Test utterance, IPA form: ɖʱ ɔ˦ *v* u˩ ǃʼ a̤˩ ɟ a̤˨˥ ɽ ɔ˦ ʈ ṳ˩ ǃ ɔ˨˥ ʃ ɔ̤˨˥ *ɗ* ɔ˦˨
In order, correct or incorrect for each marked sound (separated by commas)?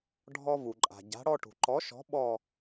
correct, incorrect